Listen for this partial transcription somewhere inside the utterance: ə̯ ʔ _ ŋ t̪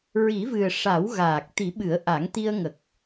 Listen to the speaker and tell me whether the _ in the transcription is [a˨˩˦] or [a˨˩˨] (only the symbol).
a˨˩˦